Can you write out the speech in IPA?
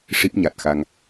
ʂ i˦˥ p̚ ɲ a˨˩ t̚ x a˧ ŋ

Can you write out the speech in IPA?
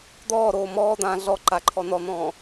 d̪ ɔː ɾ oː m ɔː d̪ ãː ɮ ɔ ǃ a ǃʰ ɔ n ɔ n̪ ɔ̃ː

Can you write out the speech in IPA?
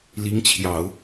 l i˧˥ ŋ t͡ɕʰ j ɑ˨˩˦ ʊ̯

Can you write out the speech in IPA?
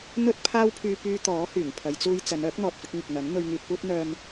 n̪ ɵ˥ t̚ pʰ aː˥ w pʰ yː˧ p yː˧ t̪ ɔː˨˥ h yː˨˩ ŋ pʰ ɐ˨˧ j t͡s uː˧ j t͡s ɐ˨˧ n œː˨˥ k̚ n̪ ɔː˨ t̚ f ɪ˧ k̚ ŋ ɪ˨ k̚ n̪ ɐ˨˥ n n̪ ɵ˧ ɥ ŋ yː˧ t̚ p uː˥ t̚ n̪ œː˧ m

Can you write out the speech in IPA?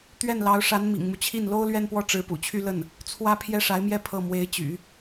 t̪ ɥ ɛ˥˩ n l ɑ˧˥ ʊ̯ ʂ a˧˥ n m ḭ˨˩ ŋ m u˦ t͡ɕʰ i˥˩ n l o˥ ʊ̯ l ɥ ɛ˥˧ n p w ɔ˥˩ ʈ͡ʂ ɻ̩˧˥ p ṵ˨˩ t͡ɕʰ y˥˧ l ə˥˩ n | t͡sʰ w ä˥ pʰ j ɛ˥˩ ʂ a˧˥ ɪ̯ m j ɛ˥˧ pʰ ɤ˥˩ m w e˧˥ ɪ̯ t͡ɕ y̰˨˩˦

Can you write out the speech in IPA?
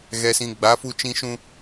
ɣ ɛ˨ s ĩ˨ ɡ͡b a˨˦ f u˧ t͡ʃ ĩ˧ ʃ ũ˧

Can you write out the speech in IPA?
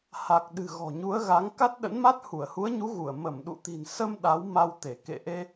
h a˨˩ k̚ ɗ ɨ̤˨˩ ɣ ɔ̤˨˩ ɲ u˨˦ ə̯ ɣ a˨˦ ŋ k a˦˥ t̚ ɗ ə̰˧˥ n m a˦˥ t̚ h u˧˩ ə̯ h u˨˦ ə̯ ɲ u˨˦ ɣ u˧˩ ə̯ m ə˧˩ m ɗ ṵ˧˨ t̪ i̤˨˩ n s ə˧ m ɗ a˨˦ w m a˧ w t̪ e˧˩ k ḛ˧˨ ʔ e˧

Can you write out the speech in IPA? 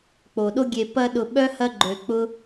k͡p o˩ ɗ o˦ ɡʲ e˨ p ɐ˦ ɗ ʊ˨ ɓ œ˥ h ɐ˦ ɡ͡ǃ ø˨ k͡p ʊ˥

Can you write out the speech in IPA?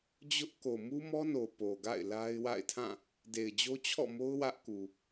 d͡ʑ ʊ˦ ʔ k o˨ m u˦ m ɔ˦ n o˨ p o˨ ɡ a̰˦˨ ɪ̯ l a˦ ɪ̯ w a̰˦˨ ɪ̯ tʰ ã˦˨ | d e˨ ɪ̯ d͡ʑ o˦ t͡ɕʰ ɔ̰˦˨ m o˦ ʊ̯ w ä˦ ʔ k u˨

